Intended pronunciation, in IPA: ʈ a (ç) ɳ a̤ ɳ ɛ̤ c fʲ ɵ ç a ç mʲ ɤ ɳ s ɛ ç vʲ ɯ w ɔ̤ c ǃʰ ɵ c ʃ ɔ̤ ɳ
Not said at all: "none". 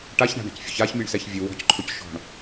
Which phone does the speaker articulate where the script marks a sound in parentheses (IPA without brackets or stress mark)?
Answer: ç